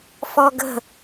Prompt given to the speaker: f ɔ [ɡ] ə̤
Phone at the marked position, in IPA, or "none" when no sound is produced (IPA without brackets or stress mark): ɡ